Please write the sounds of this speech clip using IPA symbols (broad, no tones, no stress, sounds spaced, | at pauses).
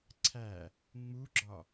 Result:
ǀʰ æ | ŋ͡m u ɡ͡ǁ ɒ